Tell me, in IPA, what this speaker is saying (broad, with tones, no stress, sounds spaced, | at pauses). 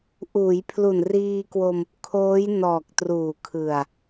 ʔ uː˩˦ j pʰ l u˨˩ n r iː˧ k w o˧ m | kʰ oː˦˥ j n ɔː˨˩ k̚ t r uː˨˩ kʰ ɯ˨˩ a̯